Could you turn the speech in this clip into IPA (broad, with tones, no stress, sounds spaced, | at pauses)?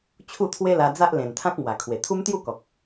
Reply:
t͡ɕʰ u˥˧ t̪ʰ w e˦ l a˧ d͡z a˦ ʔ l ẽ˨˩ n t̪ʰ ã˦ k̚ m w a˨˩ kʰ w e˨˩ t̪ʰ u˦ m t̪ j u˥˧ k ɔ˨ k̚